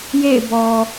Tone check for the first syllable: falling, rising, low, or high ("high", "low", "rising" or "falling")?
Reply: falling